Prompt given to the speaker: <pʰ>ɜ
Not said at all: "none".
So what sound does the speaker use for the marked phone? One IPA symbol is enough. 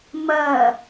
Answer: m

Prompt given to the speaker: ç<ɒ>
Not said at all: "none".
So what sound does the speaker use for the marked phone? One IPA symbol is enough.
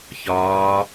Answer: ɒː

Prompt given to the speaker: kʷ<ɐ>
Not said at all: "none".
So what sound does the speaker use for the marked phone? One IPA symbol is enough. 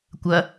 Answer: ɐ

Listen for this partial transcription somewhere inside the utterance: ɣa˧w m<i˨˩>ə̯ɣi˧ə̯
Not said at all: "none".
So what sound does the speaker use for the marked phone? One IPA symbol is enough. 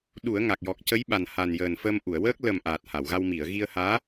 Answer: i˨˩˨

